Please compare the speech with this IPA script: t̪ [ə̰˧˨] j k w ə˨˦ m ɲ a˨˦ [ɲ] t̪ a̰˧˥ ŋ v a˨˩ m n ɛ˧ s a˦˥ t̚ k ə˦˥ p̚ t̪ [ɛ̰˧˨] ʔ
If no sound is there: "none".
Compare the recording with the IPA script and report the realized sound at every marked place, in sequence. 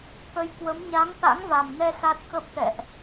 ə˨˦, ŋ, ɛ̰˧˨

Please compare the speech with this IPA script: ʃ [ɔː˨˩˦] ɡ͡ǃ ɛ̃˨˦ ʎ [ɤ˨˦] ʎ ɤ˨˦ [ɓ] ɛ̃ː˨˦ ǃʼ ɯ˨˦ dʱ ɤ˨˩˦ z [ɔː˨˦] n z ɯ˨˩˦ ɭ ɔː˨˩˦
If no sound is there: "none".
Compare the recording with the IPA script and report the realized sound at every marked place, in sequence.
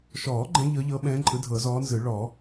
ɔː˨˩˦, ɤ˨˦, ɓ, ɔː˨˦

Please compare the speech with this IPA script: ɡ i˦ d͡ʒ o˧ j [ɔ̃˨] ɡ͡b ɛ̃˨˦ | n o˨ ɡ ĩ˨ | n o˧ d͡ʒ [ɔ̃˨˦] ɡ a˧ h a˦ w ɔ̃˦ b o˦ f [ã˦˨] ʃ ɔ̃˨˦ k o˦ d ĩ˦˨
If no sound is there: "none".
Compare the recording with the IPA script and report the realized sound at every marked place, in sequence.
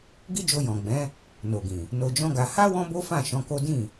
ɔ̃˨, ɔ̃˦, ã˦˨

